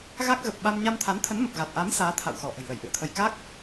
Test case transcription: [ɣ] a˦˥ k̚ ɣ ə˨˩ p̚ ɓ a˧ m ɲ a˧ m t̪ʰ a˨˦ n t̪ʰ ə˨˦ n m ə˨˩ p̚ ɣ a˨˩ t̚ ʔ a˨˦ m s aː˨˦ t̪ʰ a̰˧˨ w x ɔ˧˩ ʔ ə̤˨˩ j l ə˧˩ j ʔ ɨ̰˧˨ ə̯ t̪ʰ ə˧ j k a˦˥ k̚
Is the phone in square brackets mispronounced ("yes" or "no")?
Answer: no